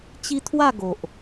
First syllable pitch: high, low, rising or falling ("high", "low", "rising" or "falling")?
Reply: high